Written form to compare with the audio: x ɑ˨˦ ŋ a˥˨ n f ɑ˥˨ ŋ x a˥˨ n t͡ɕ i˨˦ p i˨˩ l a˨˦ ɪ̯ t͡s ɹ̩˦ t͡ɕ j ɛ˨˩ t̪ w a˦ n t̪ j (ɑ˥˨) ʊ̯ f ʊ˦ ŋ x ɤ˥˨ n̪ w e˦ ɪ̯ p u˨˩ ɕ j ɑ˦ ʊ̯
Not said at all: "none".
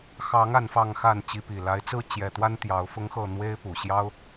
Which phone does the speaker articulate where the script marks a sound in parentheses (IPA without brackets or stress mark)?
ɑ˨˦